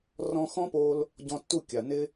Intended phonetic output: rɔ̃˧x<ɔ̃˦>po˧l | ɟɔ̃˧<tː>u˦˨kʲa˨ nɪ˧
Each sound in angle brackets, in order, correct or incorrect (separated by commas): correct, correct